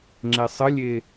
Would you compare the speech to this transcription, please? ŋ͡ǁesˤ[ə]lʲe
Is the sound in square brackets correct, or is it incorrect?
correct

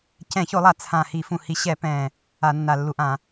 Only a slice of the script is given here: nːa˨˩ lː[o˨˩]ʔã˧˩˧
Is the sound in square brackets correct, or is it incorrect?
incorrect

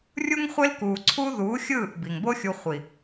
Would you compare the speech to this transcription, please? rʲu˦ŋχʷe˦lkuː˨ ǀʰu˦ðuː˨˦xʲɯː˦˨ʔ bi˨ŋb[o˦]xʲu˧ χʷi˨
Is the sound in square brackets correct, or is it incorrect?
correct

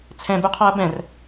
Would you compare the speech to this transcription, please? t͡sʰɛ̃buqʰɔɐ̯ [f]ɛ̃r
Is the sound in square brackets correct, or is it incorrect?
incorrect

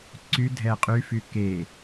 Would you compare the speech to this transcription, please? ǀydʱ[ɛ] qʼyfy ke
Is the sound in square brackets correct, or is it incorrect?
correct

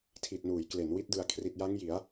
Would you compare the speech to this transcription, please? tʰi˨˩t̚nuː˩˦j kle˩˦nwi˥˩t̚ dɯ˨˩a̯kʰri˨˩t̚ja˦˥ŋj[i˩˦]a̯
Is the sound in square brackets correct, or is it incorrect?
correct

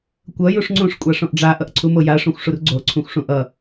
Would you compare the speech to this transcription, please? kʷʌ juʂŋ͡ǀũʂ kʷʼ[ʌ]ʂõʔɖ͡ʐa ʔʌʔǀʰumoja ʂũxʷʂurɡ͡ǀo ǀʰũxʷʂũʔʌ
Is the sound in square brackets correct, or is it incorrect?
incorrect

